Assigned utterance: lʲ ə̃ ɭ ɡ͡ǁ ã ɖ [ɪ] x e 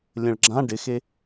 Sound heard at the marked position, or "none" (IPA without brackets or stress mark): ɪ